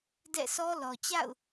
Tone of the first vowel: falling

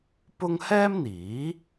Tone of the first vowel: high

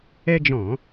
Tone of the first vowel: high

